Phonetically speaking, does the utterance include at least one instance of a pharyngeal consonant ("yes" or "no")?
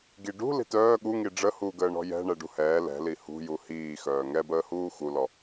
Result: no